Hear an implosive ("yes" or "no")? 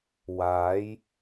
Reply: no